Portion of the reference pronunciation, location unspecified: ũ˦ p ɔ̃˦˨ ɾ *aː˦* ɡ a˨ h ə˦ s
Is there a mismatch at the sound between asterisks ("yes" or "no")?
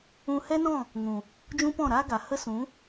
no